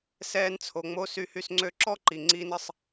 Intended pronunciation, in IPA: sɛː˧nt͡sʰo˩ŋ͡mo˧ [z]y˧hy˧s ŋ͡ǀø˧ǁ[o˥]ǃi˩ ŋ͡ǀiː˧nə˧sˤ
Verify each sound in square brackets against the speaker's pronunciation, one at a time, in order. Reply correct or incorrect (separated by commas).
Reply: incorrect, incorrect